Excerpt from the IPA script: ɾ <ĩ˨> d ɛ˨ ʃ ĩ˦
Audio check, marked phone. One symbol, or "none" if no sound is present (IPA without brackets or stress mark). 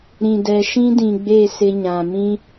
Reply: ĩ˨